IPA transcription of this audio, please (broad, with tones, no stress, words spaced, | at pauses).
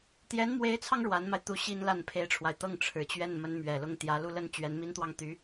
t̪jɛ˧˥nmwe˧˥ɪ̯t͡sʰɑ˧ŋ ɻwa˧˥nma˧ɪ̯t̪u˧˥ ɕi˥nla˥˩npʰe˥ɪ̯ʈ͡ʂʰwa˨ɪ̯ t̪ɤ˥˩ŋʈ͡ʂʰɻ̩˨˩t͡ɕɥɛ˥˩n mə˧˥nmɥɛ˨˩lʊ˥˩ŋt̪jä˧˥ lu˥˩lə˥n t͡ɕɥɛ˧˥nmi˥nt̪wɑ˥˩ŋ t̪y˧˥